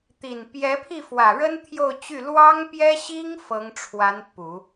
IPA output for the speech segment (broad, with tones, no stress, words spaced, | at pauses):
t̪i˨˩n pjɛ˧˥pʰi˥˩ fwä˨˩ɻə˥n t̪ʰjo˥˧ʊ̯t͡ɕy˥˩ lwɑ˥ŋpjɛ˥ɕi˥ŋ fɤ˧˥ŋʈ͡ʂʰwa˧˥n pu˨˩˦